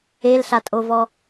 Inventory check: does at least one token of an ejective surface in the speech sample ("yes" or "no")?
yes